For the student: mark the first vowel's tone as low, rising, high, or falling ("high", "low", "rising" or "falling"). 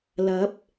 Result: rising